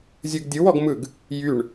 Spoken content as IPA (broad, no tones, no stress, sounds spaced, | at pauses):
zʲ ɯ ɡ dʲ ɯ w ɔ ɡ m ɯ ɡ | j y ɳ